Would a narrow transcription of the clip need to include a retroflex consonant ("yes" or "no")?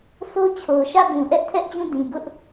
no